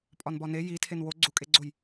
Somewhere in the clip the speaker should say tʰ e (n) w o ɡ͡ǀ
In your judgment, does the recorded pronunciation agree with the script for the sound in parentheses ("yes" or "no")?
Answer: yes